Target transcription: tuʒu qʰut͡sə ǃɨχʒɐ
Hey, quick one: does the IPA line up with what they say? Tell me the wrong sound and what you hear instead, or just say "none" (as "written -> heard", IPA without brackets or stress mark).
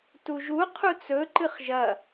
ə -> ɵ